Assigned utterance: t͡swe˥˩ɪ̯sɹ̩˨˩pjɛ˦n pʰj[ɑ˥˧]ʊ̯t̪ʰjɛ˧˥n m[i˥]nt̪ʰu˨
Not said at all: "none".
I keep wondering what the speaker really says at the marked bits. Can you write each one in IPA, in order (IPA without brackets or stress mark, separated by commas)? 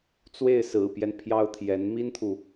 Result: ɑ˥, i˥